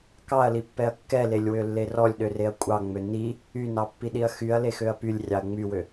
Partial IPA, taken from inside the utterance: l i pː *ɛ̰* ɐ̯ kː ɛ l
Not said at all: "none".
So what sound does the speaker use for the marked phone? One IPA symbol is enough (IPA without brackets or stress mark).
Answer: ɛ